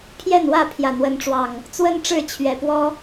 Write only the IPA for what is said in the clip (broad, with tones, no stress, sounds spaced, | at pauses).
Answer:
pʰ j ɛ˥˨ n w ä˥˨ pʰ j ä˨˩ n̪ w ə˨˦ n ʈ͡ʂ w ɑ˨˩ ŋ | t͡s w ə˦ n ʈ͡ʂ ɻ̩˥˨ t͡ɕʰ ɥ ɛ˨˩ p w ɔ˦